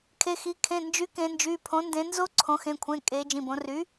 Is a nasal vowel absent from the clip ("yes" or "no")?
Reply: no